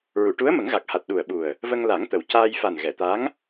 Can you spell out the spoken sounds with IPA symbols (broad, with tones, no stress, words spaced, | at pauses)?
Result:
ɹu˨˩˨ʈu˧˥ə̯ mə˨˩˦ŋɣa˨˩k̚ha˨˩t̚ ɗu˨˩ə̯ɓu˨˩ə̯ | və˧ŋla˨˩˦ŋt̪ə˨˩w caː˧jfa˨˩n ɣɛ˨˩˨t̪a˧˥ŋ